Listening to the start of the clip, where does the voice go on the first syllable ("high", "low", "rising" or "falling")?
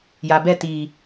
low